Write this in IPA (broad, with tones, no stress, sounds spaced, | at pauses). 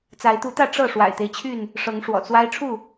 t͡s a˨˦ ɪ̯ t̪ u˨˦ t̪ ä˥˨ ʈ͡ʂ ɤ˥˨ ʂ w a̰˨˩ ɪ̯ t̪ e˦ ɪ̯ t͡ɕʰ y˥˨ n | ʂ ɤ˨˦ ŋ ʂ w ɔ̰˨˩ t͡s w a˦ ɪ̯ ʈ͡ʂʰ u˥˨